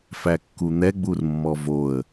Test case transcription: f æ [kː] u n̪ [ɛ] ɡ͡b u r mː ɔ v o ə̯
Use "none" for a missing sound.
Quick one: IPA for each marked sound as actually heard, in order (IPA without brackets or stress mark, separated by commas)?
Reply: kː, ɛ